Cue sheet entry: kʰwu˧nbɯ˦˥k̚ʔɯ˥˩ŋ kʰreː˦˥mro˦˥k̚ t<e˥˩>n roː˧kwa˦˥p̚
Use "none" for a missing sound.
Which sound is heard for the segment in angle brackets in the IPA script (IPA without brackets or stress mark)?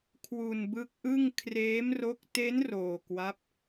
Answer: e˦˥